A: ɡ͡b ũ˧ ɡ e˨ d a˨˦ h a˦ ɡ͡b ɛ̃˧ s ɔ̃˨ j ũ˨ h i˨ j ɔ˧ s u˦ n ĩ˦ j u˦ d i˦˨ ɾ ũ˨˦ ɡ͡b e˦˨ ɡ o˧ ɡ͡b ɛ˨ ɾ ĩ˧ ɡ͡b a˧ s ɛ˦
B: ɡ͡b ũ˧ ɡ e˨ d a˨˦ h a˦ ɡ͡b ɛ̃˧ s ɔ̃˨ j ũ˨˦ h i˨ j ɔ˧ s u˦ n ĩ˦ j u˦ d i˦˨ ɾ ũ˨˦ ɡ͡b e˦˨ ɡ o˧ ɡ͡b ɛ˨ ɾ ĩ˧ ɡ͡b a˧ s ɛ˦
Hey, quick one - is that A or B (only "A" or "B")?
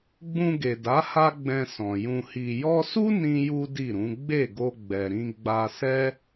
A